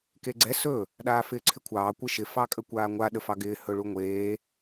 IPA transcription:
k eː ɡ͡ǀ ɛ s ɵ | ɗ aː f ɪː ǀʰ ɪ kʷʰ ɑː kʷ ɪ ʃ ɪ f ɑ kʼ ə kʷ aː ŋʷ a ɗ ə f ɑ ɡ ɪː h ɵ ɭ u ŋʷ eː

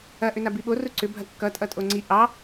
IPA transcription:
ɐ ʔ ʏ n a b i ɓ o r u ǀ ʏ bʱ ɐ kː ʌ tʼ ʌ tʼ o ŋ͡ǀ i ʔ ɑ

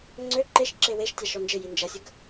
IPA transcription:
ŋ͡ǀ ø ǃ e ʃ ǁ e w e ʃ tʲ a ʃ ɔ n d͡ʒ ɪ j i n d͡ʒ ɐ sʲ ə ɡ

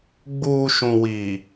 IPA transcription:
ɡ͡b uː˨ ʃ ũ˨ w iː˨

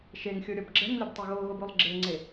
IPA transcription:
ʃ e ŋ xʲ o ɾʲ ɔ b ɡ͡ǁ ɛ ŋ lʲ ʌ b tˤ o ɣ o ɣ o b o lˠ ɡ͡ǁ e ŋ͡ǀ e

